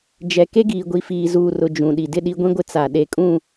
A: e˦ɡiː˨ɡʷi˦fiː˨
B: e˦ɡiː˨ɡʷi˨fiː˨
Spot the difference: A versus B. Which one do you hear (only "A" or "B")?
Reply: B